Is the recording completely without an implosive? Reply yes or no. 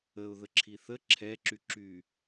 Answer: yes